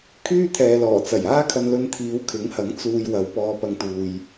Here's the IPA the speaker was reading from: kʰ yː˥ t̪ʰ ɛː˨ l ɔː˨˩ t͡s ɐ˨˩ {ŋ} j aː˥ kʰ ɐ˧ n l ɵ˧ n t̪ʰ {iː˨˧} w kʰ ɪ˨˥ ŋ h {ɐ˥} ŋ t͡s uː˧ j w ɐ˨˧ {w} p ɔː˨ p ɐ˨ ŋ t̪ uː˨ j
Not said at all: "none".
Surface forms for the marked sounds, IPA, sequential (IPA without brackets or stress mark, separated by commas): none, iː˨˧, ɐ˨˥, w